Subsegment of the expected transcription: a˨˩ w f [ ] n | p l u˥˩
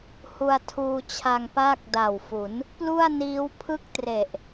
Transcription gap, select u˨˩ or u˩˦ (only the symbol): u˩˦